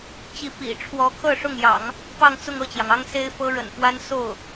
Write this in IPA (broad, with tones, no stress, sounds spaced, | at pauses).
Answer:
t͡ɕ i˧˥ p ḭ˨˩ ʈ͡ʂʰ w ɔ˧˥ kʰ ɤ˥˧ ʂ ʊ˥˩ ŋ j ɑ̰˨˩˦ ŋ | p ɑ˥˧ ŋ t͡s ʊ˥˧ ŋ ɤ˥˩ t͡ɕ j ɑ˩ ŋ ɑ˥ ŋ s e˥ ɪ̯ f ɤ˥ ɻ ə̰˨˩ n f w a˥ n s o˥˩ ʊ̯